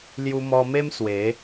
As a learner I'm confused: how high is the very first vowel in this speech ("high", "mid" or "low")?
high